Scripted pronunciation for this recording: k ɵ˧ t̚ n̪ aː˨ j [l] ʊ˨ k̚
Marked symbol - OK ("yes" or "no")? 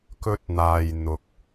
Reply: no